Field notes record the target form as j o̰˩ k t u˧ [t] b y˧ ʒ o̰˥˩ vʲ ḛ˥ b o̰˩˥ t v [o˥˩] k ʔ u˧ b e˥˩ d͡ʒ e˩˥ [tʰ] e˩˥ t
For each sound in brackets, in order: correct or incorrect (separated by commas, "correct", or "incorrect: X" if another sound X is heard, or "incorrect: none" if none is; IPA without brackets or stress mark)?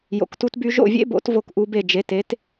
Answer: correct, correct, incorrect: t